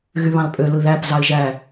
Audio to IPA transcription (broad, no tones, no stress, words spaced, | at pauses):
ɣyβɑ̃lpʼø lɯðæp zɑɪ̯ʒæ